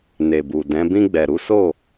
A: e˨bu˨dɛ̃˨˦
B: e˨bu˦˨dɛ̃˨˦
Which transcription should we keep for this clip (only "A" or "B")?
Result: A